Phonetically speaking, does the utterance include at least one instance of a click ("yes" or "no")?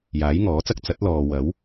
no